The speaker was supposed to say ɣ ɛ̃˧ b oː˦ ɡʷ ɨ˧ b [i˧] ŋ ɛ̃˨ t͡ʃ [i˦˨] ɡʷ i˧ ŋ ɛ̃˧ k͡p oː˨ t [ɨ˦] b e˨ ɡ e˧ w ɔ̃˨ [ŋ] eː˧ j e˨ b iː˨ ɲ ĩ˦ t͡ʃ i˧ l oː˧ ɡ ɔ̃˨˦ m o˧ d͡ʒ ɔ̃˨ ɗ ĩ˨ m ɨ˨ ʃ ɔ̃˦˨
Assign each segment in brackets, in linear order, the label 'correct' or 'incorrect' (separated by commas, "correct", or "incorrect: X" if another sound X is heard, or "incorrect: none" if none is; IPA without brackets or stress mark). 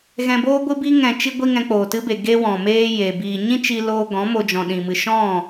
correct, incorrect: i˧, correct, incorrect: m